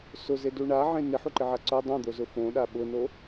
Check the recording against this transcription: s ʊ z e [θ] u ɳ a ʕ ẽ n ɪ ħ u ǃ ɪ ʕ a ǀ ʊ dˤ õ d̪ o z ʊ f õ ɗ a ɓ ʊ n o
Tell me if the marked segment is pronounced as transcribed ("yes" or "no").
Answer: no